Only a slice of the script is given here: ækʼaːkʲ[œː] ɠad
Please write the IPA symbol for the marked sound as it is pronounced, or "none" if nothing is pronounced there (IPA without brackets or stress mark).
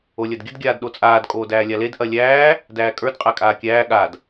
æː